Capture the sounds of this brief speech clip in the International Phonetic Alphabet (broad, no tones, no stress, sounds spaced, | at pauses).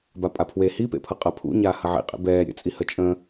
b a pʼ a pʰ w e h i p ḛ pʰ ʌ qʼ ɐ pʰ ṵ ɲ aː h ɐ ʕ ḭ qʼ ḛ b ɛː ɾʲ ə̰ t͡sʼ i h ə t͡ʃʼ ə̃